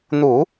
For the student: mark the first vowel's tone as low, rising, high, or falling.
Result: low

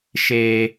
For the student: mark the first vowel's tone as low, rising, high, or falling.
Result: high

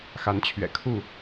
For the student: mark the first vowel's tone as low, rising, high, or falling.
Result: rising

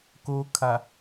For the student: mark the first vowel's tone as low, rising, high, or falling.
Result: low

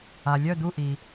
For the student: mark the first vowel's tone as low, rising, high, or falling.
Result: low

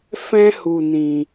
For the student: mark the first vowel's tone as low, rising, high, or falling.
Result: high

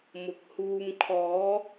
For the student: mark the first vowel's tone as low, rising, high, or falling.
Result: low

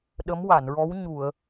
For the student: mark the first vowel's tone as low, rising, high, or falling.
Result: rising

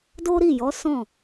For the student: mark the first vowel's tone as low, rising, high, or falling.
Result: high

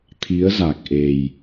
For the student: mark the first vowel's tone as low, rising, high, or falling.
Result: rising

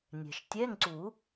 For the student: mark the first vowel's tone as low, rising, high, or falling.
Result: low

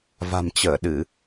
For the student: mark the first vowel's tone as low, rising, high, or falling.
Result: low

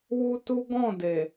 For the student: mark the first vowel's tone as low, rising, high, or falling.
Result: high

